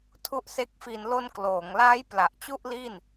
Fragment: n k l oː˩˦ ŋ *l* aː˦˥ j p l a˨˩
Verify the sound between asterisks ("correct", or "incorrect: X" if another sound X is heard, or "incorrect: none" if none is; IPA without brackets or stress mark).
correct